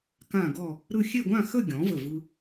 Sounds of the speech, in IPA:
kã˥˧ɡɔ˥˧ | ɾɯ˥˧ xʲe˥˧ɡʷã˥˧xə˥˧ ɡʲɔ̃˩˥və˧˩vɯ˧

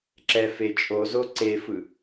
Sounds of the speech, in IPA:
ǁɛfet͡ʃʼozo ǀefɯ

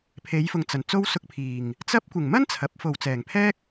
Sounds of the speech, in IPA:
pʰe˨˧jfʊ˨ŋt͡sɐ˨˩n t͡so˥wsʊ˧k̚pʰiː˨˩ŋ | t͡sɐ˥p̚ kʷɪ˨˩ŋmɐ˥n t͡sʰɐ˨˥p̚ fo˨wt͡sɛː˨˩ŋpʰɛː˥k̚

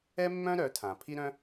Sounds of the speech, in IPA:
ɛ˦mːœ̃˦ ɾœ˨˦tʰã˨ pʰi˦ɾœ̃˦

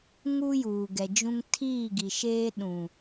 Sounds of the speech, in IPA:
ŋu˦juː˨ ɡɛ˨d͡ʒũ˦ŋ tʰiː˦˨ɡi˨ʃeː˦ ɗũ˨

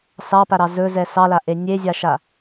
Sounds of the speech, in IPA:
sɑpaɾɑ zɵzɛ sɑlaʔe nʲezʲaʃa

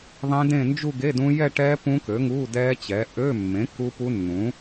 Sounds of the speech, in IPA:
ðˤẽ˦˥dẽ˥˧ nd͡ʒu˥˧ɡe˧˥˧ dũ˦˥ jɛ˥˧ʈɛ˦˥ pũ˦˥kø˩˥ŋu˧˥˧ dɛ˦˥t͡ɕɛ˩˥ ʔø˧˥˧mːẽ˩˥ ku˦˥pu˦˥nːũ˩˥

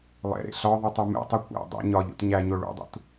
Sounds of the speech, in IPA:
lˠḛɾḛ ɬɒðˤi tˤumḛtˤi kʷæ̰ dˤḛ ɲɒʎṵt ɲæɲo ɭṵdˤṵt

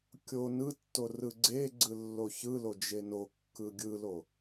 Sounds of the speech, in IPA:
kʲo nɯtːo rɯɡ͡ǀeɡ͡ǀɯ lːoçɯlo d͡ʒenokːɯ ɡʲɯlo

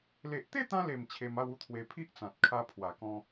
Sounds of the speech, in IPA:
le˨ʔt̪e˥˧t̪ã˧le˨˩m t͡ɕʰe˧ma˥˧wu˦t̪ʰwe˧ pʰi˦ʔt͡sã˨t̚kʰa˧ pʰwa˨˩kɔ̃˧

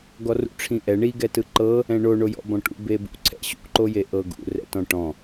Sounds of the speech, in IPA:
ɡɔrṵʈ͡ʂʰĩʔɛ ɳi ɡɛtɯǃɤ | ɛ̃ɳoɳojɔ̰ bɔ̃ʈṵ bebṵǀʰɛ̰ ɕṵǃoje ʔɤɡṵrɛ̰tɔ̃ ʈɔ̃

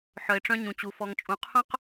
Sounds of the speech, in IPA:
ħœ˨ɪ̯ʈ͡ʂœ̃˦ɲũ˨t͡ɕu˨ fɔ˨ŋt͡ʃʼũ˨qʰœ̃˦q

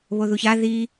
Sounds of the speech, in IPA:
βoðuça ði

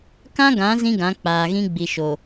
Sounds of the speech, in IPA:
kã˦ɡã˨˦ zĩ˦ɡã˨˦ k͡paː˨ɣĩ˦ ɡ͡bi˨ʃo˨

